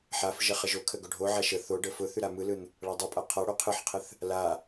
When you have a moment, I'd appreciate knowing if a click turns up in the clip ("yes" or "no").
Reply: no